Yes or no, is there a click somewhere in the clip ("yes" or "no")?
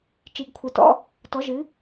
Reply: no